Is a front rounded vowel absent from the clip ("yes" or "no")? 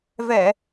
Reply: yes